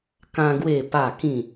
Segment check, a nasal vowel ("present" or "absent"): present